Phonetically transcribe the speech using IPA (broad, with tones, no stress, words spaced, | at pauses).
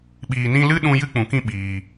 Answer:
ɓiː˨nĩ˧lɨ˦ɗũ˧ jɨ˦k͡pũ˨kĩ˦˨ ɓiː˨